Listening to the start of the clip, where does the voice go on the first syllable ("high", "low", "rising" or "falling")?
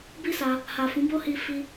high